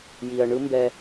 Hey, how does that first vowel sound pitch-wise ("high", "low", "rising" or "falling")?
low